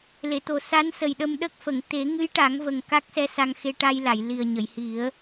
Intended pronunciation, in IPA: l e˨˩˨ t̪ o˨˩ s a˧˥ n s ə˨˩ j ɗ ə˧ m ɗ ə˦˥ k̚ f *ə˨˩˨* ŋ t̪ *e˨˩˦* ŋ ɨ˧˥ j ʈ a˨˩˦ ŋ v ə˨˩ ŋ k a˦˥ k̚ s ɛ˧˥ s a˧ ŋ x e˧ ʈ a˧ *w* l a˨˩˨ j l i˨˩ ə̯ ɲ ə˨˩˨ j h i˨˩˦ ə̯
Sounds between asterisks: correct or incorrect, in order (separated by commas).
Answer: correct, correct, incorrect